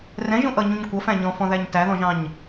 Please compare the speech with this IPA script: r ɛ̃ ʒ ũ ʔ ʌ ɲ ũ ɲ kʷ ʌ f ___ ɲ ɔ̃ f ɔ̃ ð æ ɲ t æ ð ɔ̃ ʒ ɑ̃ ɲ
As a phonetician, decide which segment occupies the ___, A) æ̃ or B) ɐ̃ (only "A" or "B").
A